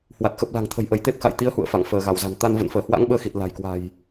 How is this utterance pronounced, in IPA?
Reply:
h w a˨˩ t̚ x ə˨˩ p̚ l a̤˨˩ ŋ t̪ʰ ə̤˨˩ j ʔ ə˧˩ j t̪ e˦˥ p̚ x a̰˧˨ j t̪ i˨˦ ə̯ h ṵ˧˨ ə̯ f a̰˧˨ ŋ f əː˧˩ ɣ a˧˩ w z a̤˨˩ n t̪ a˧ n v ə̰˧˨ n f əː˧˩ h w a̰˧˥ ŋ ɓ əː˧ x i˨˩ t̚ l a̤˨˩ j k w a̤˨˩ j

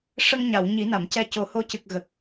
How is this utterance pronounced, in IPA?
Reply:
ʂ ə˧ ŋ ɲ a˨˩˨ w ɲ i˨˩˦ n a˨˩˨ m c ɛ˧ c o˨˩˦ h o˧˥ c ɨ˨˩ k̚ ɣ ə˨˩ k̚

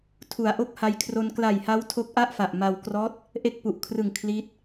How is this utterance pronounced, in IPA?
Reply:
tʰ u˩˦ a̯ ʔ o˦˥ k̚ h a˧ j kʰ r o˧ n k l a˨˩ j h a˦˥ w tʰ o˦˥ k̚ ʔ a˥˩ ʔ f a˨˩ ʔ m a˧ w k r ɔː˦˥ t̚ | ʔ e˥˩ k̚ p u˨˩ ʔ kʰ r ɯ˨˩ ŋ kʰ l iː˦˥ t̚

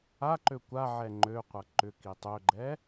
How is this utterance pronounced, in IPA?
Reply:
a ǃ ø kʷ a ʕ ɛ ŋ͡ǃ ø qʷ ɐ ǃ ʏ k i tˤ ø ɡ͡ǃ ɛ

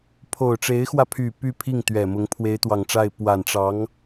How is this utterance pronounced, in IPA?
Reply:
pʰ o˨˩ ʊ̯ ʈ͡ʂ e˧˥ ɪ̯ x w ä˧ pʰ y˨˩ p y˥˧ pʰ i˥˩ ŋ t̪ ɥ ɛ˨˩ m ʊ˧˥ ŋ pʰ w e˧˥ ɪ̯ t̪ w ɑ˨˩ ŋ ʈ͡ʂ a˥˩ ɪ̯ p w a˨˩ n ʈ͡ʂ ɑ˧˥ ŋ

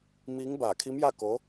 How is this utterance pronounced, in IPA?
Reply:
m iː˧˥ ŋ b aː˧˩ kʰ i˧˥ m j a˥˨ k o˧˥

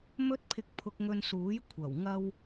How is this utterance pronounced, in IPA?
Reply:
m ɵ˥ t̚ pʰ ɪ˧ k̚ pʰ ʊ˧ k̚ ŋ ɵ˧ n s uː˨˥ j kʷʰ ɐ˨˩ w ŋ ɐ˥ w

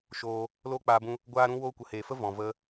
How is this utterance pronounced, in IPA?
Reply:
ʃ oː˧ | l oː˦ k͡p aː˧ b ũ˧ | ɡʷ aː˦ ɾ ũ˦ w oː˦ kʷ ə˨ h eː˨ f ə˦ v ɔ̃˨ v ə˧

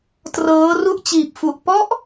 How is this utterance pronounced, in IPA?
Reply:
t r ɤː˦˥ r u˥˩ ʔ t͡ɕ iː˨˩ p̚ f u˨˩ ʔ p ɔ˦˥ ʔ

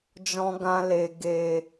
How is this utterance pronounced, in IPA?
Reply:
d͡ʒ ɔ̃˧ ɡ ã˧ l e˨ ɡ eː˨

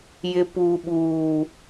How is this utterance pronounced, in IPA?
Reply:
j ɪ˨ p uː˨ ɓ uː˨

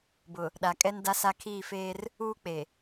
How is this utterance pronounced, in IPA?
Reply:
b ʊ˨ | ɗ a˨ kʼ ɛ˦ n d a˦ s a˦ kʰ iː˦˨ f eː˦ r | uː˦ k͡p e˨

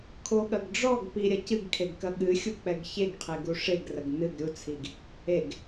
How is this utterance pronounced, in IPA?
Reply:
kʰ o ɠ ɐ ɡ ɖ͡ʐ ɔ ɡ p i ɾʲ ɐ c ɨ ɡ kʰ e ɡ k ɐ ɠ ɨ xʲ u k͡p ɛ ɡ ç e ɡ qʰ e ɡ u ʂ e ɡ r ɐ ɡ n ɨ ɡ ɾʲ u t͡sʰ i ɡ | e ɡ

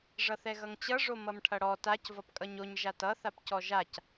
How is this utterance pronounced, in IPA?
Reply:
ʐ ʌ θ ɛ ɣ ʌ ŋ t͡ɕ ʌ ʐ o m ʌ m ʈʰ ʌ ɽ ɔ t a c v ʌ p kʼ ʌ ɲ o ɲ ʒ a t ʌ θ a p c ɔ ʒ a c

